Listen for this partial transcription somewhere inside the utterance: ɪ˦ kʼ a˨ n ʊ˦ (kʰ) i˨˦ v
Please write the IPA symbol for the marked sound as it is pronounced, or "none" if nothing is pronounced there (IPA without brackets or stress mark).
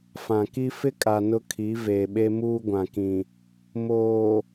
kʰ